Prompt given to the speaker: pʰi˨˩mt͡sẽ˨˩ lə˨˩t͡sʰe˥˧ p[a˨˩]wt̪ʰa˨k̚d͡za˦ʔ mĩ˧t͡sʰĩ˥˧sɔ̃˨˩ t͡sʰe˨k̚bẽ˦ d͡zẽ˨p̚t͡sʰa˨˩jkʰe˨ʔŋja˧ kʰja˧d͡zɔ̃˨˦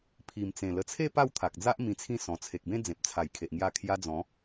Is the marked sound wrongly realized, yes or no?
yes